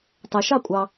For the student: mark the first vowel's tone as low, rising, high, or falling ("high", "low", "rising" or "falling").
low